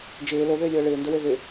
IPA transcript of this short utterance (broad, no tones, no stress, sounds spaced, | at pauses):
d͡ʒ ɪː l o ð ɪː lʲ əː ɭ ɪː n d ə w e ð ɪ